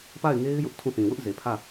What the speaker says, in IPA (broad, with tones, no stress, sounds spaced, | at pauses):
p a˦˨ ɪ̯ ŋ e˦ ɪ̯ j ʊ˦ ʔ tʰ ũ˦˨ θ ĩ˨ w ʊ˦ ʔ z e˨ pʰ ä˦˨